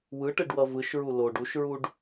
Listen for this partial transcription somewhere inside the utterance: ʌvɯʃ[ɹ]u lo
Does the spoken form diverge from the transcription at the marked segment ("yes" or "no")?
no